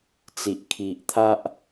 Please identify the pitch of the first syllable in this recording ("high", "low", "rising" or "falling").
low